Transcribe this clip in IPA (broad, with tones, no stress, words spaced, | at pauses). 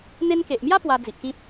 n̪e˧nke˨ʔmja˦ pwa˧d͡zi˨ʔkĩ˦p̚